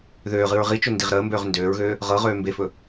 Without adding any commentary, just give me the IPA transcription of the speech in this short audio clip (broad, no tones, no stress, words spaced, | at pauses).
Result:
ðøːʁɨɹ ʁit͡ʃɵ ndiʁɾəːmbøːʁ ndøːɹɣøː | ʁɤʁøː mbefɵ